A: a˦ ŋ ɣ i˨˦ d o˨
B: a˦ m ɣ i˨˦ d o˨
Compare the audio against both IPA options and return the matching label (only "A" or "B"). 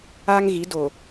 A